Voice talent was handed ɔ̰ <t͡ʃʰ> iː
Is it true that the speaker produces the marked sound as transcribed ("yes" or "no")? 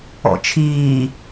yes